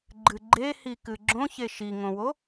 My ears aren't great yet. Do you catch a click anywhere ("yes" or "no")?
yes